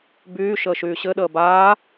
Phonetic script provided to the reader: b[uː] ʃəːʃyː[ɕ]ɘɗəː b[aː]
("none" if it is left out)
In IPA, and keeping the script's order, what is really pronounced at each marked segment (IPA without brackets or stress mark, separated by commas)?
yː, ɕ, aː